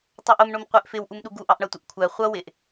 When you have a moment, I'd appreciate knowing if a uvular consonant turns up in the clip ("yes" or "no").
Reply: yes